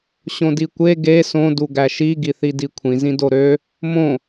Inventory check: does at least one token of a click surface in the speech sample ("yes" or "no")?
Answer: no